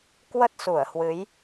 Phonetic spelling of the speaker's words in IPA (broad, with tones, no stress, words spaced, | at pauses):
kwə˦˥t̚su˧˩ə̯hwɨ˨˦j